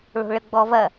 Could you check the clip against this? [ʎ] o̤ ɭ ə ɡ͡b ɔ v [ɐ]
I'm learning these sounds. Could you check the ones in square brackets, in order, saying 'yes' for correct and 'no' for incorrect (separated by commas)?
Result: no, yes